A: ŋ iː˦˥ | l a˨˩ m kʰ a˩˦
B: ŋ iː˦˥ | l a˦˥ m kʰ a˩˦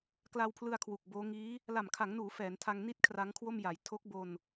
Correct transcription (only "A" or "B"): A